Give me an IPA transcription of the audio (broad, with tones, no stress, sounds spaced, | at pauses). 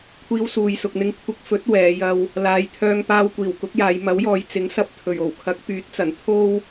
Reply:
kʷʰ iː˧ w s uː˨ j s ʊ˨ k̚ n̪ ɪ˧ ŋ kʷʰ ɪ˧ k̚ f ɵ˨˥ t̚ w ɛː˨˧ j ɐ˧ w | l aː˨˧ j t̪ʰ œː˧ ŋ p aː˧ w kʷ iː˨˩ w k ʊ˨˥ k̚ j aː˨˧ j m ɐ˨˥ w j ɔː˨˧ j t͡s ɪ˨˥ ŋ s ɐ˧ p̚ t̪ʰ ɵ˨˩ ɥ o˨˩ w kʰ ɐ˨˥ k̚ p yː˨˥ t̚ t͡s ɐ˨˩ n t̪ʰ o˥ w